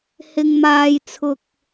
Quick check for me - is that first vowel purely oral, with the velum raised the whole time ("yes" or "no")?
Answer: yes